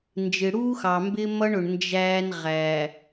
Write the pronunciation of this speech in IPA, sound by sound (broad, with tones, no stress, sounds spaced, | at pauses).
n d͡ʒ ɪ˨ ɽ uː˦ x ɑ˨ m b ɪ˦ m ʌ˦ ɳ ʊ˨ ɳ n d͡ʒ æː˦ n ʁ æ˨